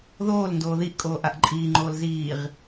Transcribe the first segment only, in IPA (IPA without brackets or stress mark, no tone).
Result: ð